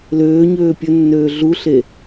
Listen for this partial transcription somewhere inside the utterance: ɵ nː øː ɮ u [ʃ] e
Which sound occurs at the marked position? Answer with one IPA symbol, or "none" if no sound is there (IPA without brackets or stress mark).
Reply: ɬ